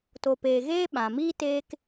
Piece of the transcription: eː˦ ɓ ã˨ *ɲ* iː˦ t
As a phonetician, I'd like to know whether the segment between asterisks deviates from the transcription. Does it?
yes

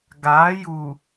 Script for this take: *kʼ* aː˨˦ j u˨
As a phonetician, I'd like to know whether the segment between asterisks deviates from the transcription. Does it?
yes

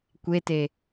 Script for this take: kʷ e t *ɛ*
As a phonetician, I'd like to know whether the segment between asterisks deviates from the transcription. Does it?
yes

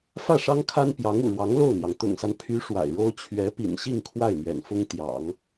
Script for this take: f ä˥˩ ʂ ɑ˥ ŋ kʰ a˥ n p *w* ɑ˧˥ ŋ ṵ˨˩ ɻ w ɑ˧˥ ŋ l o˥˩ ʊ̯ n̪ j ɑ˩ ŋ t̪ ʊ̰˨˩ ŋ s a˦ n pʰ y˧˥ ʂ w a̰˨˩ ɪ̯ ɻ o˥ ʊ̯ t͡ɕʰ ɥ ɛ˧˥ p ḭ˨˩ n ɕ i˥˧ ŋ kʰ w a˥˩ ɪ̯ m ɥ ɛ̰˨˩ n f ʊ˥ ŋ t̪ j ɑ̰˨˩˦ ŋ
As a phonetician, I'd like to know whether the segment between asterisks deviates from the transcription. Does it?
yes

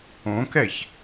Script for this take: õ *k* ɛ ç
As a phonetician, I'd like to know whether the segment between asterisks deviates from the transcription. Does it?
no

